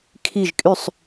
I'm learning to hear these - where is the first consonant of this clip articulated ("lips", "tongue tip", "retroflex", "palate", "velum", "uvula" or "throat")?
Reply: velum